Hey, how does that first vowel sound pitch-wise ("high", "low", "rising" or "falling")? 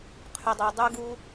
low